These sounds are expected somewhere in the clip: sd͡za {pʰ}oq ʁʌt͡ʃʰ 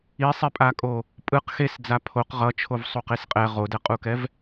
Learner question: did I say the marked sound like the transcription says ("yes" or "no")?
yes